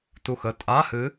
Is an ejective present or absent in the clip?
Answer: present